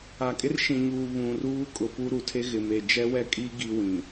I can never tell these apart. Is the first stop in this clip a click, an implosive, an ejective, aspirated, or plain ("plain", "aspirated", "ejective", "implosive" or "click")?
ejective